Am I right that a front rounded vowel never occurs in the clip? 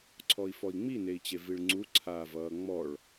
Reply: yes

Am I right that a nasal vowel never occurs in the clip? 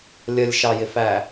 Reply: yes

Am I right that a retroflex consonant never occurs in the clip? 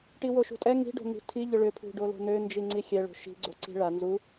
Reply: no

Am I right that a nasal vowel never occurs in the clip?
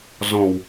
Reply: no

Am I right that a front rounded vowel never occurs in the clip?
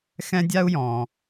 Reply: yes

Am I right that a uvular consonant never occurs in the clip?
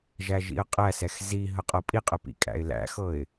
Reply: no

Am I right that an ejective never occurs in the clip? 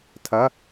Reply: yes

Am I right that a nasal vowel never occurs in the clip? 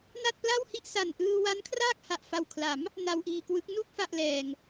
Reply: yes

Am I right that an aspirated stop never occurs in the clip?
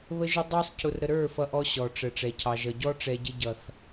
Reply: no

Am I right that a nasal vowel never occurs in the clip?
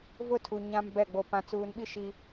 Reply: no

